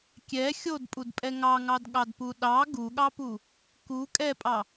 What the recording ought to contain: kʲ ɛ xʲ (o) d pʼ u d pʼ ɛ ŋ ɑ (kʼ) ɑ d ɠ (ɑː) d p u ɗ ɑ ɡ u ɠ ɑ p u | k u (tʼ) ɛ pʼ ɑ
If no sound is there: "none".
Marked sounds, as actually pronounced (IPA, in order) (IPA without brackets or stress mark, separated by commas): o, ŋ, ɑ, kʼ